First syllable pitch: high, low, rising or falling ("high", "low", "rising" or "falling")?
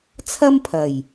high